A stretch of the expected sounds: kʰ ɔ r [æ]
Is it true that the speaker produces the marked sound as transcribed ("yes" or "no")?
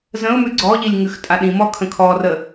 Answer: no